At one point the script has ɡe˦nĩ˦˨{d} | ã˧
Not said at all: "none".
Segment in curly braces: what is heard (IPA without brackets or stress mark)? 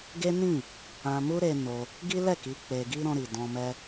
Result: none